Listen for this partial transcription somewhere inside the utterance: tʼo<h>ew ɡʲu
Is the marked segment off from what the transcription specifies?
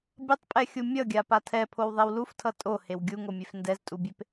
no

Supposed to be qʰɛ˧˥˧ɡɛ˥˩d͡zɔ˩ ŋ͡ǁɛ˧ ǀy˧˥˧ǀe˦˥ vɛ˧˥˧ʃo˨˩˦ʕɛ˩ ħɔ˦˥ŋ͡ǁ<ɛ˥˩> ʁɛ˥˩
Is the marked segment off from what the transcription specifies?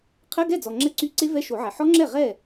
no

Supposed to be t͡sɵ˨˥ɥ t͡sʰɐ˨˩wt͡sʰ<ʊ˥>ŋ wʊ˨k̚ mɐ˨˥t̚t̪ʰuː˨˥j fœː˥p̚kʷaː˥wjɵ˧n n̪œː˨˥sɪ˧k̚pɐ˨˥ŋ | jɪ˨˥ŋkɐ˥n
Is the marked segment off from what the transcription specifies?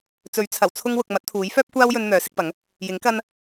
no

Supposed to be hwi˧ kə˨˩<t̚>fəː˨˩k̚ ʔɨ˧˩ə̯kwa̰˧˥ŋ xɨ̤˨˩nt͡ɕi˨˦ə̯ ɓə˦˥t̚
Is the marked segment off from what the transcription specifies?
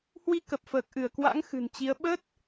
yes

